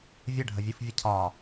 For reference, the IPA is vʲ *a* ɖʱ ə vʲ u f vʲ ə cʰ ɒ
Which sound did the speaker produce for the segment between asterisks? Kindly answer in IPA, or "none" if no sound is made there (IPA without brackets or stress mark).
ə